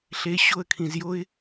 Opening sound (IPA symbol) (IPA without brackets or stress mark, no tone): ɬ